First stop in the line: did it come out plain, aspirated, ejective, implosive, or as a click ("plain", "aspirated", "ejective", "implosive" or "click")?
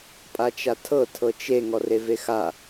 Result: ejective